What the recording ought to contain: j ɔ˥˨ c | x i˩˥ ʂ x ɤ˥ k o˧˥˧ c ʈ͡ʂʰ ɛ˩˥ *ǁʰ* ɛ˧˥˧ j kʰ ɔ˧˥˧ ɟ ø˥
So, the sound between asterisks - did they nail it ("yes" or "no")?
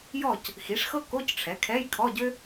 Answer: no